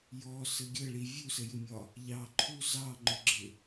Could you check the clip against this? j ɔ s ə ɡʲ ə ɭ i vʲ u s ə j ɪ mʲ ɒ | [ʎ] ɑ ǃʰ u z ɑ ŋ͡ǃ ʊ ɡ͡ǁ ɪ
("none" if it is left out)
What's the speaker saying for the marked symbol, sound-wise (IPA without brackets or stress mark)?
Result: ʎ